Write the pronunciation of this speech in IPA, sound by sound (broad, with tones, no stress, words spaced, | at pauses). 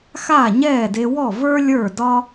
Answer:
xaː˥˩ɲɛː˥˩de˧ wɔ˥˩və˞˥ lʲə˞˥˩dɒ˥